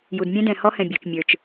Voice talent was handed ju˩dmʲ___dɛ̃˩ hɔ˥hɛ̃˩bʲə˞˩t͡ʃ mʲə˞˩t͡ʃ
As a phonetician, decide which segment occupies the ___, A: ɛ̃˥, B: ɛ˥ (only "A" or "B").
A